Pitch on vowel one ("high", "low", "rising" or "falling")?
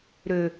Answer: low